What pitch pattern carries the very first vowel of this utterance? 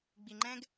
low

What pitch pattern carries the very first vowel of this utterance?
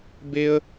high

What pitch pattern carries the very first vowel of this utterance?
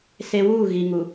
high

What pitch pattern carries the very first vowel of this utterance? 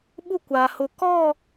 high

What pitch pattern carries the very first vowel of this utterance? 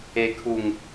high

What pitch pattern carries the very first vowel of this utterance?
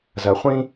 low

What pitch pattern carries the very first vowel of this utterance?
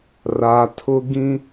low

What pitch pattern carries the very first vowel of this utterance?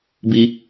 high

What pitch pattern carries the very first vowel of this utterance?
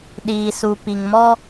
low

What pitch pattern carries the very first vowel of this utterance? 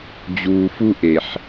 low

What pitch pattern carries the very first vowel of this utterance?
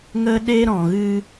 high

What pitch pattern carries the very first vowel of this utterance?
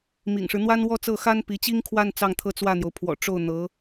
low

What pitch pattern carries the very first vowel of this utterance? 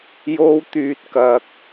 high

